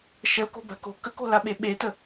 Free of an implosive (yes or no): no